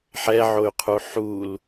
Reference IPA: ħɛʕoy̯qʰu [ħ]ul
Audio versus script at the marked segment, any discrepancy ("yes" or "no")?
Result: no